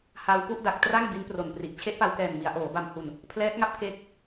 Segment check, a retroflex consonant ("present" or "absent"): absent